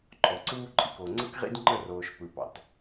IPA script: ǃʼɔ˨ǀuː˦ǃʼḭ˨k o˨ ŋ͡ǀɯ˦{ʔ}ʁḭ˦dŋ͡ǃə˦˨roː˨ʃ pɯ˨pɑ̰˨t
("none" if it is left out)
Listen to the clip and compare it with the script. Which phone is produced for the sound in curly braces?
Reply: k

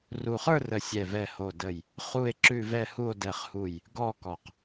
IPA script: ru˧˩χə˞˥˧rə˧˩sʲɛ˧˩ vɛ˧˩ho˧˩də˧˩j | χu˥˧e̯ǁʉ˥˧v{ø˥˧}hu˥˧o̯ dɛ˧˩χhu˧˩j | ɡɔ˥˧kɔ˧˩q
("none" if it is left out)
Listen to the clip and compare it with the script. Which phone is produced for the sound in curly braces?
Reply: ɛ˥˧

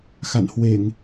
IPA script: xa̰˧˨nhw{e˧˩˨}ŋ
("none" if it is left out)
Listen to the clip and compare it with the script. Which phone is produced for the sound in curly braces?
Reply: e˧˩˨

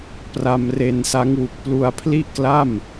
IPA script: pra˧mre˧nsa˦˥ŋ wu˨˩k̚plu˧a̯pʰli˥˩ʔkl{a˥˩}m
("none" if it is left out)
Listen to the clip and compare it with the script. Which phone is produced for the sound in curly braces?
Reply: a˥˩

